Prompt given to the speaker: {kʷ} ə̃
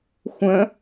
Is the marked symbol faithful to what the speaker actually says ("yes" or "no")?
no